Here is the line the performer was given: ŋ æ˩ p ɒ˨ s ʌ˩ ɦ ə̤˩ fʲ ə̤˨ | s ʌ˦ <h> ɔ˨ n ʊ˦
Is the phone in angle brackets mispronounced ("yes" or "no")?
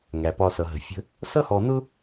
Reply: no